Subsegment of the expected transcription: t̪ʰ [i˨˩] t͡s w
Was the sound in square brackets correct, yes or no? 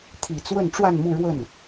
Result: yes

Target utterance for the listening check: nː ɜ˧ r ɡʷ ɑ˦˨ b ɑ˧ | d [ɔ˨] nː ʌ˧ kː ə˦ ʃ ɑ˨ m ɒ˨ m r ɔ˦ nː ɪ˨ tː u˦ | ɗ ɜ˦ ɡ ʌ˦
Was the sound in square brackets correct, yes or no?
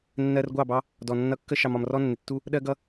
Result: yes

